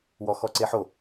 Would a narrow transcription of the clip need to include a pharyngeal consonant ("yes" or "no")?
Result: yes